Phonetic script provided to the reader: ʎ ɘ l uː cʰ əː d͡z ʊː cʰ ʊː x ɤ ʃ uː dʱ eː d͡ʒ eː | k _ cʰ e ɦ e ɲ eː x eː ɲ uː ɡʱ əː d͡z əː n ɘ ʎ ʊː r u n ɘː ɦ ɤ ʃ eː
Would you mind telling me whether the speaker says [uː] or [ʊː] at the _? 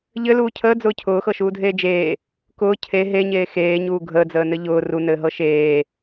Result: ʊː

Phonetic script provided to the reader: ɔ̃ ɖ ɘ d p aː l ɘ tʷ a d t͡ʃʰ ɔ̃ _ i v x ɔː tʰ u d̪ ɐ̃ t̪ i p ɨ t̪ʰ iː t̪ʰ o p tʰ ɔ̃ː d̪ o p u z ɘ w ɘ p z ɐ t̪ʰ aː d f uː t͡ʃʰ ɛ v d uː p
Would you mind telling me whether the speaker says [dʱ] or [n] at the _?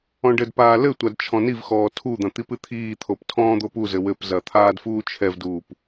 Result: n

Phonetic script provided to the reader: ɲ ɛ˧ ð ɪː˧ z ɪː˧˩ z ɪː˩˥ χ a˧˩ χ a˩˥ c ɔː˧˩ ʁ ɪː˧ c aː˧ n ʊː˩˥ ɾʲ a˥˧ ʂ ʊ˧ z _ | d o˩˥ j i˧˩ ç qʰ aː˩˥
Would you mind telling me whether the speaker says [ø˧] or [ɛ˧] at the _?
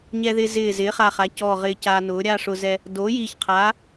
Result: ɛ˧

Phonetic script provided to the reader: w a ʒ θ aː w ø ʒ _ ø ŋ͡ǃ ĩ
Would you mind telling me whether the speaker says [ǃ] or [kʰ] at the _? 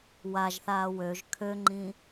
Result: kʰ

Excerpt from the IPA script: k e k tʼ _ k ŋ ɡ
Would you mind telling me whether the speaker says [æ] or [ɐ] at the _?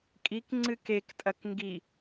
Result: ɐ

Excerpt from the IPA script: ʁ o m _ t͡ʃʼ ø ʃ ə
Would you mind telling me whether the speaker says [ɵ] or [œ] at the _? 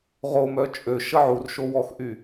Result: œ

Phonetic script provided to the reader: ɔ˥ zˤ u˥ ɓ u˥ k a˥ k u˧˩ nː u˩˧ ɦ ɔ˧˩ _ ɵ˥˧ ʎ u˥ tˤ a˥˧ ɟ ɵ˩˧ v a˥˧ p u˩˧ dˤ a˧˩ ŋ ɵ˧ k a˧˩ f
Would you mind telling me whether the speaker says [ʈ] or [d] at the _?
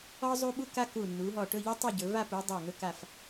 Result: ʈ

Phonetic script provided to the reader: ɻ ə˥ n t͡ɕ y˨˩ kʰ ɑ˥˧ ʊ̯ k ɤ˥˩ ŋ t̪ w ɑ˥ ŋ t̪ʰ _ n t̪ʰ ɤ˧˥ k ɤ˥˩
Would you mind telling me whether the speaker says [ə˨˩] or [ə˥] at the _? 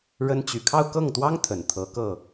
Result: ə˨˩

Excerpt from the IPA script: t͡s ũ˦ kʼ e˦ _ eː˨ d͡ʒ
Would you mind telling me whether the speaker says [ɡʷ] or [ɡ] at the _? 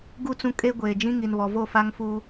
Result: ɡʷ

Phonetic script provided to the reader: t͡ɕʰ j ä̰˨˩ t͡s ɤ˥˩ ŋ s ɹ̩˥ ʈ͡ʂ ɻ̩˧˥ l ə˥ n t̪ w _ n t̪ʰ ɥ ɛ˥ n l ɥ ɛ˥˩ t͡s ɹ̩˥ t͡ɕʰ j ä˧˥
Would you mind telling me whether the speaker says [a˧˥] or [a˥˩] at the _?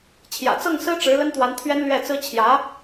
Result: a˧˥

